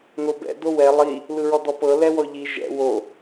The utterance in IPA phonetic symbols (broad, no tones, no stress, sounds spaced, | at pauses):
n o b ɛ̰ d o w ɛ lˠ i | l ɯ ɹ ɔ d ɔ p ɤ l ɛ w ɔ ʎ i ʒ ɛ̰ w o